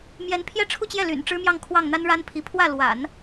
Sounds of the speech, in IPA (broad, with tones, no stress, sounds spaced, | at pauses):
m j ɛ˧˥ n pʰ j ɛ˥ ʈ͡ʂʰ u˥˧ t͡ɕ j ɛ˥˩ l y̰˨˩ n ʈ͡ʂ ɻ̩˥ m j ɑ˥˧ ŋ kʰ w ɑ˥˩ ŋ n̪ a˥ n ɻ a˥ n pʰ i˧˥ pʰ w ä˥˩ l w a̰˨˩˦ n